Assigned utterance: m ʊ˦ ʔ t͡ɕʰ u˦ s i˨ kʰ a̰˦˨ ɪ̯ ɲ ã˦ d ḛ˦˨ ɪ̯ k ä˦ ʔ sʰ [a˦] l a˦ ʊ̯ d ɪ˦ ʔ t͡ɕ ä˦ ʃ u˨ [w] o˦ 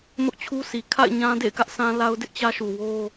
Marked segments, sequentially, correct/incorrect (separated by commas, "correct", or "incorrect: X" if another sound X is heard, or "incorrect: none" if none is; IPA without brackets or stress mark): incorrect: ã˦, correct